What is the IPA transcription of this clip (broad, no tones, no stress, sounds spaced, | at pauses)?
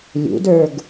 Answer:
lʲ ṵ d ə˞ ɡ